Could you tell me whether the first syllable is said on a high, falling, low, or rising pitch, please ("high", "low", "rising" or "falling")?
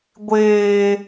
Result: low